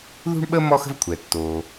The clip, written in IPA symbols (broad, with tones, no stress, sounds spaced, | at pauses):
ð ṳ˥ ɳ ɓ ə˥ m ɔ˥ x ə̤˥ v kʷʰ ɛ˩ tː o˩